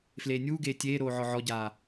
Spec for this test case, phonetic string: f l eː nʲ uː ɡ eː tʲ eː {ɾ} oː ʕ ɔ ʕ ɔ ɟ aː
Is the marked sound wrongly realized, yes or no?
no